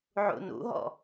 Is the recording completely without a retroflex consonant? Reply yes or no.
yes